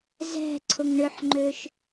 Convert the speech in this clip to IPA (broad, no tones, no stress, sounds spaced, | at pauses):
z ɛ̤ ǀʰ ʊ ŋ ɳ ʏ ħ ŋ͡ǃ ø ʃ